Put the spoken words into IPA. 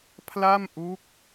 pʰ l a˥˩ m ʔ u˦˥ k̚

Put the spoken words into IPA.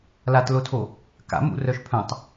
l a t l o tʰ o | k a̰ m ṵ r œ ʃ pʰ œ̃ tˤ

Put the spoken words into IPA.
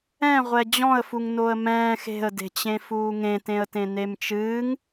ɛ̃ ʁʷ ɛ d͡ʑ ɔ̃ ə̯ f u ŋ n o ə̯ m ɛ̃ː x e̤ ə̯ d e̤ t͡ɕ ẽ f uː ŋ ẽ t ẽ ə̯ t ẽ n e m t͡ʃ ɨː ŋ

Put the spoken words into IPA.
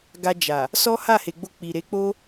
ɡ a˧ d͡ʒ a˨ | s ɔ˦ h a˦˨ h e˨ ɡ͡b o˧ k͡p i˨ ɾ e˨˦ k͡p o˦

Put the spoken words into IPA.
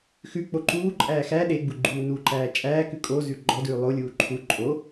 x ʉ k͡p o ǃ uː ǃʼ æː x æ ɗ e ɡ͡b u ɡ͡ǃ uː n u ǃ æː t͡ʃʼ æː k ʉ kʼ o z ʉ ɡ͡ǃ ɔ d ʉː lˠ o lʲ uː ǃʰ u ǃʼ o

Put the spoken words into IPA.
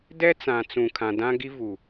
d ɛ˦ t͡s ã˨ t͡s ũ˨ kʰ ã˨ d ã˦ ɡ i˦ v u˨

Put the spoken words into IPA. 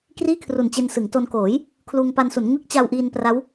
k r iː˥˩ kʰ r u˨˩ n t͡ɕ e˧ n s ɯ˩˦ ŋ t o˧ n k oː˩˦ j | kʰ l uː˧ ŋ p a˧ n s u˩˦ n ŋ ɯ˦˥ k̚ t͡ɕ a˧ w ʔ iː˧ n p r a˦˥ w

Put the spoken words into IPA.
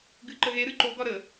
ɡ ɨ ǃ ə ɣ e ɾ ɨ ǃ o ɡ ɒ ɾ ə

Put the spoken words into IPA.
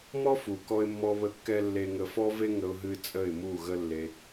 m ɔ˦ f u˨ k ɔ˧ ɪ̯ mː ɔ˧ β ə˧ kː ɛ˧ lː e˨ ŋ ə˨ f ɔ˧ v e˧ ŋ ə˦ ʊ̯ ɦ ɨ˦ t͡sʼ ə˦˨ ɪ̯ m u˦˨ ɣ ə˦ lː e˧

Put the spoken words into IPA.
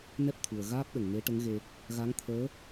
n ɛ˦˥ p̚ t̪ʰ u˨˩ ə̯ ɣ aː˦˥ p̚ ɗ ə˨˩ ŋ n e˧˥ ʈ ə˧˥ ŋ ɣ e˧ | ɣ a˧˥ ŋ t̪ʰ əː˧˥

